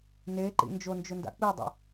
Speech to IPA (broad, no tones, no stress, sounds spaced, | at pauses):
n e ǃ ḭ n d͡ʒ o n d͡ʒ ʊ n d a̰ k͡p i dˤ ɛ̰